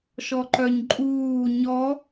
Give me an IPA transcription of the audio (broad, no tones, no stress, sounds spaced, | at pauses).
ʃ ɔ ǃ œ ɲ ǃʼ uː ɲ ɔ